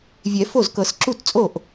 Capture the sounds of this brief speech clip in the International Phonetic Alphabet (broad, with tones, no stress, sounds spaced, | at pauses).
vʲ ɛ˨˩˦ f o˥˩ z k ɤ˨˩˦ s ǁ u˥˩ t t͡sʼ o˥˩ ʔ